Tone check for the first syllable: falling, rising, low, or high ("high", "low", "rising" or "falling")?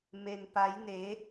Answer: low